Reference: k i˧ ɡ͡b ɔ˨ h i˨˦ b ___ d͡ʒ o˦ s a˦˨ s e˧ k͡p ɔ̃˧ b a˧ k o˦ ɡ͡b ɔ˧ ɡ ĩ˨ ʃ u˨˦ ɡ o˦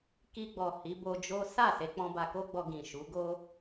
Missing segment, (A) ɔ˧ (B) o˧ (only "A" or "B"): B